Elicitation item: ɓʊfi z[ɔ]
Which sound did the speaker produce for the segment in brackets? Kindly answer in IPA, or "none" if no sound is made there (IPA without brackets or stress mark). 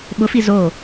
o